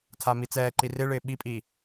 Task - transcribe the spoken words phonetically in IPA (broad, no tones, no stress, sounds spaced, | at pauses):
tʰ a m i t͡s ɛː ǃ i r ɪ ɭ ɪː ɓ i pʼ iː